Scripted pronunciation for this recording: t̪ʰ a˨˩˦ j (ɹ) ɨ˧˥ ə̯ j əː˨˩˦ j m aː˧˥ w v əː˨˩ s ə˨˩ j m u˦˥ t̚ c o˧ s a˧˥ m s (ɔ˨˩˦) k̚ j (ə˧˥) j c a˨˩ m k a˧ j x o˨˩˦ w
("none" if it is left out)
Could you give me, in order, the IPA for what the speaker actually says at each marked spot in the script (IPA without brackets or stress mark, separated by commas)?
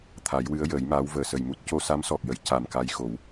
w, ɔ˨˩, ə˨˩˨